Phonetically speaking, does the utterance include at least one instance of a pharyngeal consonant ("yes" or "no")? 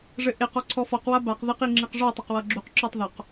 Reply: no